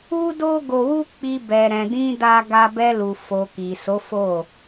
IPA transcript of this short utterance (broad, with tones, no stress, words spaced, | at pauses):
u˦do˦ ɡo˧wu˦k͡pi˧ bɛ˨ ɾɛ̃˨dĩ˧ da˧ɡa˧ bɛ˧lu˨ fo˨ ki˨so˨˦fo˦˨